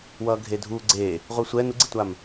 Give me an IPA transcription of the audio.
wʌːɡʱedʱu ɡ͡ǀe | ʁʷɯsʷɛ nuɡ͡ǀitʷam

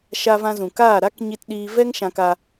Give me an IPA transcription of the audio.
ʃa˧vã˧zũ˨kaː˦˨ ɾa˦k ɲi˧tɗiː˧ vɛ˦ŋʃã˧ka˧

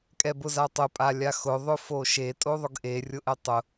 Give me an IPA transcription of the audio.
kʼɛbʊzatˤʊ pʼalʲaxʊ ðˤʊfoʃe tʼoðˤʊɡʔe rʲʊʔɛtˤʊ

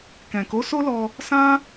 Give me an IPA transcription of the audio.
kɛ̃˨ko˨˦so˦lɔ˧ | sã˦

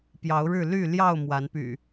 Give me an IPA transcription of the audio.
pjɑ˨˦ʊ̯ɻɻ̩˥˨ ly˥˨ljɑ˥˨ʊ̯ mwa˨˦npy̰˨˩

